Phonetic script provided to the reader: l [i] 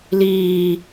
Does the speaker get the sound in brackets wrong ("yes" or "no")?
yes